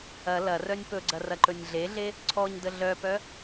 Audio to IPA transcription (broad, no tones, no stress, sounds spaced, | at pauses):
ɐ l ɐ r œ nʲ p ɵ ɡ͡ǀ ɐ r ɐ ǃ ɵ nʲ ɮ e ɮ e | ǀʰ ɔ ɲ d ə ɮ œ p œ